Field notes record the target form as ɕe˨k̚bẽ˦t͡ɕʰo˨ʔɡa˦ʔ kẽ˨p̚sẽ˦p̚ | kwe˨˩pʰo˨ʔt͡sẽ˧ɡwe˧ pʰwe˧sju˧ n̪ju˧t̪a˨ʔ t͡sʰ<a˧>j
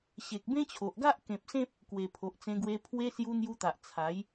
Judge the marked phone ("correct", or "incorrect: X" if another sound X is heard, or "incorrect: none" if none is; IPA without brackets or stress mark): incorrect: a˨˦